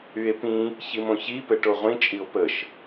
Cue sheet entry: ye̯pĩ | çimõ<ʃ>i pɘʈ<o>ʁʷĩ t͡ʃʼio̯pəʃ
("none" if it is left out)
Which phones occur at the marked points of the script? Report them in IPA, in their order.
ç, o

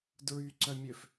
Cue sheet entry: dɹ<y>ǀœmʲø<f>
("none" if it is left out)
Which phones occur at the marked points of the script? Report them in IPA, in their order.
y, f

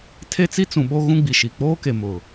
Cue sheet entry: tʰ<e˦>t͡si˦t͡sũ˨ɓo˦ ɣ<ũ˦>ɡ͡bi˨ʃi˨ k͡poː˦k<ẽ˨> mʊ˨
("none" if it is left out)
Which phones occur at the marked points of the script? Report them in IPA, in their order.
e˦, ũ˦, e˨

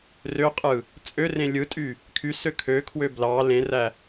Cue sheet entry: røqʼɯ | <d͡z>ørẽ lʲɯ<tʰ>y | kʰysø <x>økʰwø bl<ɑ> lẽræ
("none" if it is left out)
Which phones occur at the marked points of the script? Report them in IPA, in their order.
t͡sʼ, tʼ, kʰ, ɑ

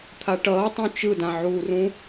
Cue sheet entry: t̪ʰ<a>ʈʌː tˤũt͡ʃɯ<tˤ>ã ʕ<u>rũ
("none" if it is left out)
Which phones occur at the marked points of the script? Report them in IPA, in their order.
a, d, u

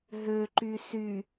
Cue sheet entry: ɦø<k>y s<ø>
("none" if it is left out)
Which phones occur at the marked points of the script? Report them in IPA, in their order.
ǃ, y

